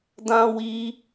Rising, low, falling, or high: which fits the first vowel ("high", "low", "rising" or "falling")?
high